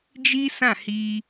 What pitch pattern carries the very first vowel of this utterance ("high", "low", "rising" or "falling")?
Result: high